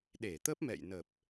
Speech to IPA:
ɗ e˧˩ t̪ ə˦˥ p̚ m ɛ̰˧˨ j n ə˨˩ p̚

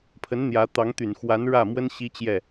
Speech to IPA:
pʰ ə˧˥ n n̪ j ä˧˥ t̪ ɑ˧˥ ŋ t̪ y˨˩ n x w a˧˥ n ɻ ä˥˩ m w ə˥ n ɕ i˥ t͡ɕ j ɛ˥˩

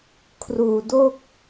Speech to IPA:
kʰ r uː˧ d o˥˩ k̚

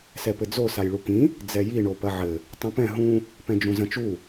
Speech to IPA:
s ɛ p ɘ d͡z o s a j ɭ u k ĩ | d͡z ɛ j i ɳ o p ɐ ʕ ɘ | tˤ ũ p ɛ̃ ɦ ũ | p ɛ̃ d͡ʒ ũ z ɐ̃ t͡ʃ u

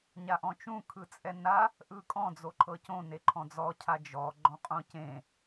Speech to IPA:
ɲ a ʔ ɔ̃ t͡ʃ ũ kʰ ɯ t͡sʼ ɛ n a | ʔ ɯ kʼ ɔ̃ d͡z o ǃʰ ɤ c õ n e ǃʰ ɔ̃ d͡z ɔ cʰ a d͡ʒ ɔ ɡ͡ǃ ɔ̃ qʼ õ c ẽ

